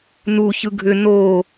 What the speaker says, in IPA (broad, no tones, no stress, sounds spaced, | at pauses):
n u ç ɯ ɡʱ ʏ n o